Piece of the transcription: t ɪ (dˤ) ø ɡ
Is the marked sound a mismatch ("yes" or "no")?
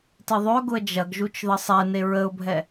yes